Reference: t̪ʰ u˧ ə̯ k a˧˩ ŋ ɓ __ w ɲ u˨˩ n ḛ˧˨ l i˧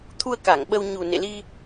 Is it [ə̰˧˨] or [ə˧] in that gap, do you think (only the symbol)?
ə˧